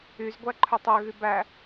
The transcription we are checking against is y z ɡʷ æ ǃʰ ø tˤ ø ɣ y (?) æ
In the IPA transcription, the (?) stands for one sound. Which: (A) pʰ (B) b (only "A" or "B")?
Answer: B